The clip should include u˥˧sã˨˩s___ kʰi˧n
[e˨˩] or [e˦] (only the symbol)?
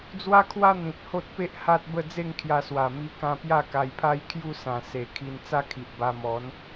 e˨˩